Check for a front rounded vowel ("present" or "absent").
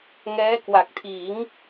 absent